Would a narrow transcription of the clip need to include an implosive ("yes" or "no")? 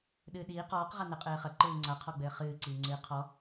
yes